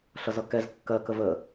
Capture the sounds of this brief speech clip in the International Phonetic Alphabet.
ɬ ʌ z ʌ k ɛ z kː ɜ k ə v ə

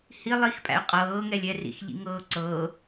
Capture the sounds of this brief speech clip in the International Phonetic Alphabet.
h i lˠ i x pʼ æ̰ y̯ qʼ ɤː ŋ ɛ lʲ ɛ r ḭ x ʎ ḭ ŋ ɤː ǀ ɤː

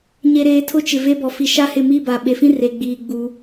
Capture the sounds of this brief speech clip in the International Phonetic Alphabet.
ɲ e˨ ɾ eː˨ tʰ ʊ˦ t͡ʃ ɪ˨ v e˦ b ɔ˨ f i˨ ʃ a˦ h ɪ˦˨ m i˦˨ b a˨ ɓ e˨ f ĩ˦ r e˨ ɡ͡b iː˨ ɡ͡b u˨˦

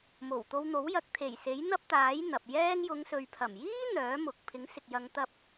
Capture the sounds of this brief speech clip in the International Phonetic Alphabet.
m o˨˩ w t̪ o˧ w n̪ o˨˥ w j ɐ˨˥ k̚ t̪ʰ e˨˩ j s e˨˥ j n̪ ɐ˥ p̚ t̪ aː˨˥ j n̪ ɐ˨ p̚ j ɛː˧ ŋ j ʊ˨˧ ŋ s ɵ˨ ɥ pʰ ɐ˨˩ m j iː˥ n̪ œː˨˥ m ʊ˨ k̚ pʰ ɪ˨˥ ŋ s ɪ˨ k̚ j ɐ˨˧ ŋ t̪ ɐ˧ p̚

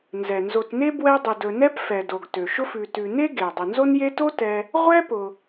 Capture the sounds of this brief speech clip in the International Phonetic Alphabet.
n z ɛ˩ n z o˨ t n e˥ b w ɛ˦ dˤ ʊ˨ d ɵ˨ n ɛ˥ p f ɛ˩ d o˩ ɡ t ø˩ ʃ ʊ˥ f ʉ˨ t ʉ˨ n e˥ ɡ e˩ dˤ ʊ˩ n z o˦ n j e˦ t o˥ t ɛ˦ | ʁʷ ɛ˥ p ʊ˨

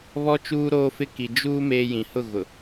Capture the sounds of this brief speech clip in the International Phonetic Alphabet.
β ɔ˦ t͡ʃ uː˦ ɾ oː˦ f ɪ˦ k i˨ d͡ʒ uː˦ m eː˦ j ĩ˨ h ʊ˦˨ ɣ ʊ˨

